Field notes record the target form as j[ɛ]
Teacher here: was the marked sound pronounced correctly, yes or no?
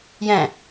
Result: no